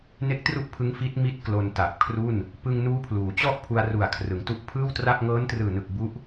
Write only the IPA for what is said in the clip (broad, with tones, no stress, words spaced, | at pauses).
ne˥˩k̚tru˥˩ʔpʰɯ˦˥ŋ fi˦˥t̚ mi˥˩t̚ klo˧nta˨˩p̚kʰru˥˩n | pɯ˧ŋnuː˦˥pʰluː˩˦t͡ɕɔ˥˩ʔ pʰu˧a̯ru˨˩a̯kʰrɯ˩˦ŋtu˦˥ʔ pʰɯː˥˩wtra˥˩p̚ ŋɤː˦˥ntrɯː˨˩nɯ˨˩k̚ bu˦˥ʔ